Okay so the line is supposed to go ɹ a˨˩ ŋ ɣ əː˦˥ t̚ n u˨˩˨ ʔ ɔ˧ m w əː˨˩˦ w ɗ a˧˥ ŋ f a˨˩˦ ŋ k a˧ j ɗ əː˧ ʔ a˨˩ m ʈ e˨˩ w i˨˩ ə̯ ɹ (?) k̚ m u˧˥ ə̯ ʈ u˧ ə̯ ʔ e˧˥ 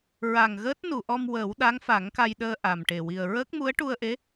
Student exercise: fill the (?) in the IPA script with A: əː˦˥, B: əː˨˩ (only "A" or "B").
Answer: A